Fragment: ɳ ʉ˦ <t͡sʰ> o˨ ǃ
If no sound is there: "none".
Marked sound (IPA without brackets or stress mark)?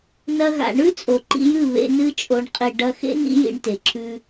t͡sʼ